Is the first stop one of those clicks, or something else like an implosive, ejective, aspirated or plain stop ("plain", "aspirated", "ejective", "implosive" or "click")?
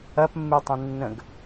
plain